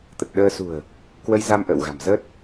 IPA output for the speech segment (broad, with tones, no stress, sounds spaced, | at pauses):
t̪ ə˨˩ t̚ ɗ əː˧ s ṳ˨˩ ə̯ | k w ə˧ j z a˧ m ʔ ə̰ː˧˨ w ɣ a̤˨˩ m z əː˦˥ t̚